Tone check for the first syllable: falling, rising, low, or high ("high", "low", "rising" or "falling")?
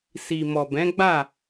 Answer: low